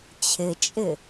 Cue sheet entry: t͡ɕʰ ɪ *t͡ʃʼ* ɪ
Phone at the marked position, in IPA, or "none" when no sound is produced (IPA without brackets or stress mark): t͡ʃʼ